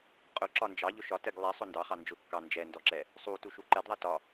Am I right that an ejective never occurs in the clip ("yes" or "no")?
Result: no